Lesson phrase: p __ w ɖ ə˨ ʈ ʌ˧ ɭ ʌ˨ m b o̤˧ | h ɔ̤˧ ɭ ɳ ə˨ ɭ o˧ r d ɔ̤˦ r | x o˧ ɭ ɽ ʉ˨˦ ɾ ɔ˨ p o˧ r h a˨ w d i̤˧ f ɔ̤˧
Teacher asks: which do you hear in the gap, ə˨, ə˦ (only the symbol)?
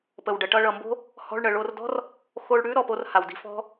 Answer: ə˨